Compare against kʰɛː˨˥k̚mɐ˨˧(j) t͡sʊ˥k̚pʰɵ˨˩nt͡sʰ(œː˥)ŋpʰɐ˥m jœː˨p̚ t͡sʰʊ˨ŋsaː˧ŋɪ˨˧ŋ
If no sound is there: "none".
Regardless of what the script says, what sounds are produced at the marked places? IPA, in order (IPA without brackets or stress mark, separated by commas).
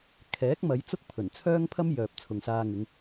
j, œː˥